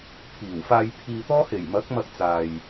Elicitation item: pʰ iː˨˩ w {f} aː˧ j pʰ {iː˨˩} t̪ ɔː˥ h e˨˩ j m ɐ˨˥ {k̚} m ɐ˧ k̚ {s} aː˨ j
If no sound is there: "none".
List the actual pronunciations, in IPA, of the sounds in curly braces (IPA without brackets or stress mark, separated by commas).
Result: f, iː˧, k̚, t͡s